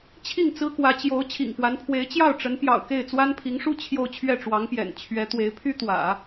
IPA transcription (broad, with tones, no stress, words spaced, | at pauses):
t͡ɕʰi˥˩ŋt͡sɹ̩˥kwä˧˥ t͡ɕjo˧˥ʊ̯ t͡ɕʰḭ˨˩ŋpwa˧˥npʰwe˧˥ɪ̯ t͡ɕjɑ˥˩ʊ̯ʈ͡ʂə˧˥n pjɑ̰˨˩ʊ̯ke˥˩ɪ̯ t͡swa˥npʰi˧˥ŋʂu˥ t͡ɕʰjo˥˧ʊ̯t͡ɕʰɥɛ˥˩ ʈ͡ʂwɑ˧˥ŋpjɛ̰˨˩n t͡ɕʰɥɛ˧˥t̪we˧˥ɪ̯ pʰy˥t̪wä̰˨˩˦